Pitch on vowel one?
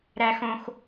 low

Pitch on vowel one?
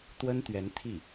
high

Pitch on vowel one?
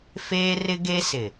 high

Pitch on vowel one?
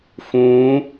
rising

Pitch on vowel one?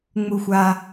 high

